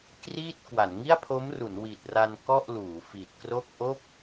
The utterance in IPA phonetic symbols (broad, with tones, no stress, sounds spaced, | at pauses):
k r iː˥˩ t̚ k w a˩˦ n ŋ i˥˩ a̯ pʰ o˦˥ m r u˩˦ n w i˨˩ t̚ r a˧ n k ɔ˥˩ ʔ l uː˩˦ f i˨˩ t̚ k r o˥˩ k̚ ʔ o˥˩ k̚